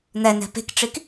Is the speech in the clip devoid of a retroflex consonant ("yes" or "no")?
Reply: no